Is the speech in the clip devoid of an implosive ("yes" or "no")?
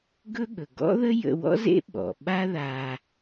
no